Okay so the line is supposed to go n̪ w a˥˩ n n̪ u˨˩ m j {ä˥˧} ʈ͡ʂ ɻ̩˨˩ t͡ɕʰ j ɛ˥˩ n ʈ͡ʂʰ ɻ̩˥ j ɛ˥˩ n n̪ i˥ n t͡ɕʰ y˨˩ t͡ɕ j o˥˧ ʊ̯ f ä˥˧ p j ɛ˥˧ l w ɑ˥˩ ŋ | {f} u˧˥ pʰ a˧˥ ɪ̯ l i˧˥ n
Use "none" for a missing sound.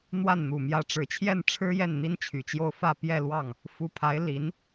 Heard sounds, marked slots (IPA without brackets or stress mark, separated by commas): ä˧˥, f